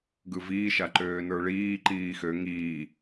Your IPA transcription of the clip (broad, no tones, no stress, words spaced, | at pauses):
ɡɯviːʃa ǃøːnə˞ɭiːǃiː xø ŋiː